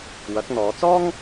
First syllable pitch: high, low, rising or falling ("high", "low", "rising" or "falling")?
rising